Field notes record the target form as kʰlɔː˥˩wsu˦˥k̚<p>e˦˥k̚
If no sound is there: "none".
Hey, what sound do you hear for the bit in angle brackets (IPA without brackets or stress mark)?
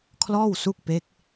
p